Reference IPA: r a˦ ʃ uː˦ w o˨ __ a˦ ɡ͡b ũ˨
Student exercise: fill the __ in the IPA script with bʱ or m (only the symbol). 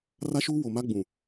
m